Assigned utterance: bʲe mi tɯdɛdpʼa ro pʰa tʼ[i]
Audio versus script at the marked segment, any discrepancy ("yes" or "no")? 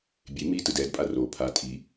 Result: no